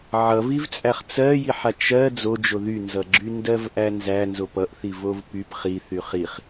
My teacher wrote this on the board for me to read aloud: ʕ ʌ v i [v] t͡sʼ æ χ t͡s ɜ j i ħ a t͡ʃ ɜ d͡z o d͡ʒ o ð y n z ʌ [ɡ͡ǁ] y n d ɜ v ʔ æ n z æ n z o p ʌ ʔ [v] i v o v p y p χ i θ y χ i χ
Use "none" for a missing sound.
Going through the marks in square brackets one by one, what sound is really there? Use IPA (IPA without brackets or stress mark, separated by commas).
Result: v, ɡ͡ǁ, θ